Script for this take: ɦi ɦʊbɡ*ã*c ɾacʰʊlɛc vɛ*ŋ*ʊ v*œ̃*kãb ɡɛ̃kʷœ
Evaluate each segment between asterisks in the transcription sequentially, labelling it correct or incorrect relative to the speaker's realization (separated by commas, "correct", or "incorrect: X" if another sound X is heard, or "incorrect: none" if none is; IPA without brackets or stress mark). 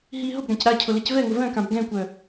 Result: correct, correct, correct